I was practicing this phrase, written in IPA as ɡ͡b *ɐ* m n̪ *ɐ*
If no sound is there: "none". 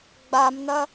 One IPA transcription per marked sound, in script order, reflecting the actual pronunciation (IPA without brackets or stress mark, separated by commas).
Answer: a, ɐ